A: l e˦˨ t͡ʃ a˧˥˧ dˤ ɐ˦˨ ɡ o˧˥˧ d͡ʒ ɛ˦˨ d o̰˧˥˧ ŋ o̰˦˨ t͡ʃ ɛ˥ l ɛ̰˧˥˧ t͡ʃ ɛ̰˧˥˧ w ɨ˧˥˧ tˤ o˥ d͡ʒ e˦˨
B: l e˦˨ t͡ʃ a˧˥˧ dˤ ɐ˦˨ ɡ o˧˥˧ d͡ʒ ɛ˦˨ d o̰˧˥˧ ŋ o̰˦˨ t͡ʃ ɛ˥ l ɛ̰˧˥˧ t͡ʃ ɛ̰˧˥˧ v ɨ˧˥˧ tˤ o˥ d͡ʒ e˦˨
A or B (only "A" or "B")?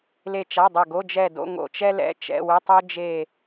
A